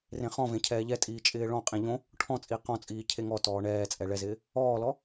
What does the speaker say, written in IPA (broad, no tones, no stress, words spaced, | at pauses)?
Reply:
rẽχɔ̃vẽ cʰɛːʎɛtʼiː t͡ʃʼɪːɭɔ̃qʼĩ ʎõ | ʈʰɔ̃t͡sʼi qɔ̃t͡sʼiː cʰeŋɔtɔː ɳɛːt͡sʼɛ ɭɛzɪː | ɔːlɔ